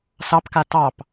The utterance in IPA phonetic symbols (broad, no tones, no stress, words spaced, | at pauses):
sɑpka tɑp